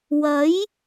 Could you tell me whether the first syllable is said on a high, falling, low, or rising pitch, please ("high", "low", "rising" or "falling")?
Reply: rising